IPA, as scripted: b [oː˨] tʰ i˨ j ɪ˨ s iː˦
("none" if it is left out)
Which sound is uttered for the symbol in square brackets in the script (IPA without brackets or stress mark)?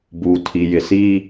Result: uː˨